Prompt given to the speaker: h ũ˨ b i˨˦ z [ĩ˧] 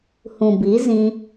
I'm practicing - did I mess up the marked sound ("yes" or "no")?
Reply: no